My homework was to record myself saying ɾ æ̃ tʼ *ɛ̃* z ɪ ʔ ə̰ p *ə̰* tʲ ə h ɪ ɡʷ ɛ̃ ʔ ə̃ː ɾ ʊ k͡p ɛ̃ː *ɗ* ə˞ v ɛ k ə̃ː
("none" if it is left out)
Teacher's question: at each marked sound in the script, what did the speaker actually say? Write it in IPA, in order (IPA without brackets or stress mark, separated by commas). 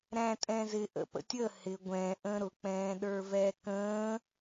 ɛ̃, ə̰, ɗ